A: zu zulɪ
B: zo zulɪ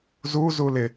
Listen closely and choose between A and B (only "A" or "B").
A